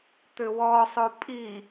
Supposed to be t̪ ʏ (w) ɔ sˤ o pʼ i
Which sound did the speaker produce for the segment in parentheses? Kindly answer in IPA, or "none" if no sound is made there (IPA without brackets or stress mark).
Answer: w